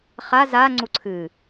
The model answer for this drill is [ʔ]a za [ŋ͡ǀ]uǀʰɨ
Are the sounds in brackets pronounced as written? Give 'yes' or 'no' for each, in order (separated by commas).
no, yes